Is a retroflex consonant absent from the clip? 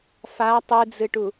no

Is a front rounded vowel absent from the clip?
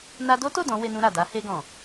yes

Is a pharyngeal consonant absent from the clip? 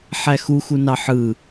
no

